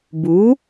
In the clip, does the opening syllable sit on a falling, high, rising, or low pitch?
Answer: rising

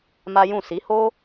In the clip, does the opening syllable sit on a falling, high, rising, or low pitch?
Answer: high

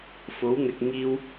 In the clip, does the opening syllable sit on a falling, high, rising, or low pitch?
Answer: rising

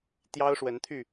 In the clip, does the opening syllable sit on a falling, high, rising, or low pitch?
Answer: high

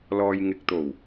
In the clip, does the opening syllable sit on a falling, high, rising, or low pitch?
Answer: low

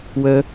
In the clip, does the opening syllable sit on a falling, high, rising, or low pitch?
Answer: high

